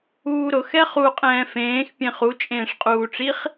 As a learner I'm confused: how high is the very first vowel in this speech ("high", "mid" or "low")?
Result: high